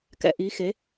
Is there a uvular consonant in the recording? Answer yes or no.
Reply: no